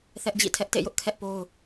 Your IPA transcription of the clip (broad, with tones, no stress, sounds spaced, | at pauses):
θ ɛ˦ ʔ d͡ʑ ḭ˦˨ tʰ ɛ˦ ʔ t ḛ˦˨ j ʊ˦ ʔ kʰ ɛ˦ ʔ p o˦ ʊ̯